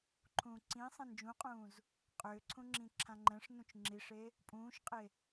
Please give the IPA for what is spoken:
ǃʰ ũː ǀ ĩ sˤ ẽ n d͡ʒ ũ qʼ ũː z | qʼ ʏː ǀʰ ũ ŋ͡ǁ ĩ ǁʰ ã ŋ͡ǃ ɛ̃ ʂ n ũ t͡ʃ ŋ͡ǁ i ʂ e | pʼ ũː ʃ qʼ e

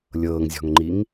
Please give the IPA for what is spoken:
lʲ ɤː ŋ zʲ ɔ̤ ŋ ŋ͡ǃ i ŋ

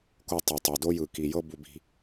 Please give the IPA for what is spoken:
k o˧ tˤ o˨ tˤ o˨ d o˦ j ɯ˨ k i˨ j ɤ˦ b u˧ b i̤˧

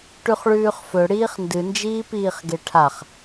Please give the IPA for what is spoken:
ʈ ʉ χ ɭ ʉː χ f ɵ ɽ iː χ n d ɨ n d͡ʒ iː p iː χ ɡ e ʈʰ a χ

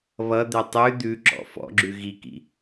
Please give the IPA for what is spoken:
β ʌ d̪ ɛ tˤ ʉ d̪ ʉ ǁ ɔ̰ f ɔ̰ ɡ͡ǁ ʉ ɣ i k ḭ

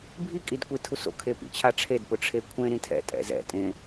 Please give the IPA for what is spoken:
bʱ i kʼ i d kʷ i tʰ u s o̰ kʰ e p ḭ t͡ɕʰ a ʈ͡ʂʰ e d p ʊ ʈ͡ʂʰ e kʷʰ ẽ ɾ ĩ tʰ ɛ̰ tʼ ɛ̰ z ɛ̰ tʼ ẽ

